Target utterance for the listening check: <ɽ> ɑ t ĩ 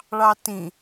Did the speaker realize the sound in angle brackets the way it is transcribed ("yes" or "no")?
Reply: no